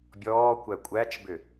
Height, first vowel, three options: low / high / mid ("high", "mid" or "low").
mid